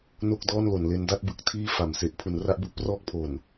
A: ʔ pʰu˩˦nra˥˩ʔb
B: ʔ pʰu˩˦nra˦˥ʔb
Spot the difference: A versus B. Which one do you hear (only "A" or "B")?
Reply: B